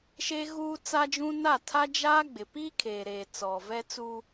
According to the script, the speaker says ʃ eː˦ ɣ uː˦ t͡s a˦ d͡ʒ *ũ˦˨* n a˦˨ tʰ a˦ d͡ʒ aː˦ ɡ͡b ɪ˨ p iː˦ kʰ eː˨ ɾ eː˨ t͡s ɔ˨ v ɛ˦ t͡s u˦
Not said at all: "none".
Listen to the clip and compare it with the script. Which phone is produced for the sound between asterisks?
ũ˦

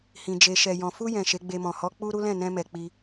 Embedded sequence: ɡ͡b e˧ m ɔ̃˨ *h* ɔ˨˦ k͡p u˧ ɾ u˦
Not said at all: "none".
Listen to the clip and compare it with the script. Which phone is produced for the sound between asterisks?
h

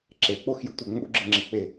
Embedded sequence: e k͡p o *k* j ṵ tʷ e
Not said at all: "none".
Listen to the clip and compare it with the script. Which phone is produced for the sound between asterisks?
x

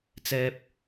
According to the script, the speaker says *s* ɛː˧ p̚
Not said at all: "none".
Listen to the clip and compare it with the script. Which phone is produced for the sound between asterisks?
t͡s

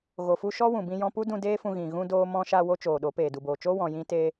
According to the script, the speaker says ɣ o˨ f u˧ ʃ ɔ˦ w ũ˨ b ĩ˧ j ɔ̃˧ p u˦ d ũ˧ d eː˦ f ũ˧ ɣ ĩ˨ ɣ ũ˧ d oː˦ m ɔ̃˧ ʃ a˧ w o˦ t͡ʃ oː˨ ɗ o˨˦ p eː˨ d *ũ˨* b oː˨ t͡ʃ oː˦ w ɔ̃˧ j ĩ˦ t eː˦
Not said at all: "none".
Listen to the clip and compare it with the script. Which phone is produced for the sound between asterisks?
u˨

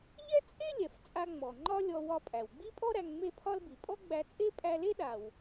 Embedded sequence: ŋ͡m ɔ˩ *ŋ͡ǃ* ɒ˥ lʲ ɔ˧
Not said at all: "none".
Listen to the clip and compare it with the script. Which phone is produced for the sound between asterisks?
ŋ͡ǃ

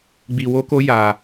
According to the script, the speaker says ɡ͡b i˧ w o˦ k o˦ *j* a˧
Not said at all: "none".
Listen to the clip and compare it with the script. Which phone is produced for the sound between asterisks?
j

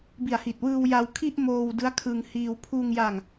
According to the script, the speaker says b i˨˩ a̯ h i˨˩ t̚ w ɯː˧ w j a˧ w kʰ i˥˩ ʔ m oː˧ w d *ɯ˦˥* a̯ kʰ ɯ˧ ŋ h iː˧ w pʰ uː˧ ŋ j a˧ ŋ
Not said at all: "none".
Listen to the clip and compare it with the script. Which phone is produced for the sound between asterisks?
ɯ˦˥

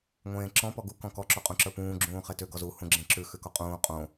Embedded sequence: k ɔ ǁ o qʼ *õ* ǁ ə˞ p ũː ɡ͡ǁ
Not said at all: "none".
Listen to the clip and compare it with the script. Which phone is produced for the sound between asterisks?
ũ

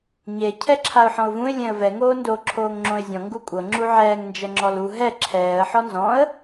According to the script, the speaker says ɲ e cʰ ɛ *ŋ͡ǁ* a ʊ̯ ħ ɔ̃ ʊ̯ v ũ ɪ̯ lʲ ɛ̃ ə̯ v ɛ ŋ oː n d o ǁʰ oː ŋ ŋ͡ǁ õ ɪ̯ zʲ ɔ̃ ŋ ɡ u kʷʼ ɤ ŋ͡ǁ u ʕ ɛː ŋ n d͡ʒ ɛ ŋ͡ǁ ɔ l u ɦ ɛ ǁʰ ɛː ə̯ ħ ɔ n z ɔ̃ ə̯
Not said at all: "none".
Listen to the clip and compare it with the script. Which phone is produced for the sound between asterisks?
ǁʰ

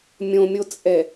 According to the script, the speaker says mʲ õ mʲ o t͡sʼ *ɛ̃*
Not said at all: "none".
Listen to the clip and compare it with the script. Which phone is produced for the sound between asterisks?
ɛ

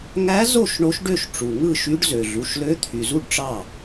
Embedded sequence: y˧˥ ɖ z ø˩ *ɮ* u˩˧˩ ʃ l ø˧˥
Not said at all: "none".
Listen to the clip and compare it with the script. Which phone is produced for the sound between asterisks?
ɮ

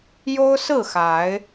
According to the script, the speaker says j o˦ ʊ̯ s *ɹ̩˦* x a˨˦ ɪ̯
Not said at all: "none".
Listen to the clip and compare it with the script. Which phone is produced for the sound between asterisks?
ɹ̩˥˨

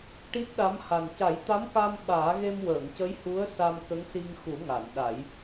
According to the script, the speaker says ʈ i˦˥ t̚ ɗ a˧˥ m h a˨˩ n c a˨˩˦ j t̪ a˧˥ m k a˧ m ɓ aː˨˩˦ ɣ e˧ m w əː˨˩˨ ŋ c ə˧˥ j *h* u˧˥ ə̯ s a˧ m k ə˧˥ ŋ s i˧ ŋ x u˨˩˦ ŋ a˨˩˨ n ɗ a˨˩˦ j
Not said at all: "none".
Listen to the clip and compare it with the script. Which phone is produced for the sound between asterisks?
h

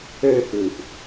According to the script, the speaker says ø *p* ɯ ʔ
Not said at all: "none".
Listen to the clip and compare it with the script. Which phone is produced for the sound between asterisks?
p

